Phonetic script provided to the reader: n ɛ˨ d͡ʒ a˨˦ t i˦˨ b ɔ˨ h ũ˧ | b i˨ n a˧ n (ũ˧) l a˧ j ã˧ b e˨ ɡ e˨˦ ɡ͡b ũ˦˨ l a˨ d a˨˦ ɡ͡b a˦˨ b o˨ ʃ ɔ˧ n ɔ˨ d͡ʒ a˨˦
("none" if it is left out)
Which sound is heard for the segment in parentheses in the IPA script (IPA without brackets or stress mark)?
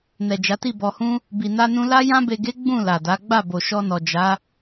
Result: ũ˧